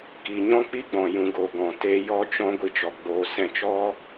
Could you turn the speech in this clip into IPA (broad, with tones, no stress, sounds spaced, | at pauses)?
k i˨ ɲ ɔ̃˦ k͡p i˦ ɡ͡b ɔ̃˨ j ũ˨ ɡ o˨ ɡ ɔ̃˨ t eː˧ j ɔ˦ t͡ʃ ɔ̃˦ ɡʷ i˧ t͡ʃ ɔ˨ ɡ͡b oː˨ s ɛ̃˦˨ t͡ʃ ɔ˦